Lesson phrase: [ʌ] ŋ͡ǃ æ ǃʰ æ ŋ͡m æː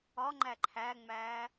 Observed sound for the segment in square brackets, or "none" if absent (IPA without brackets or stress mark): ɒ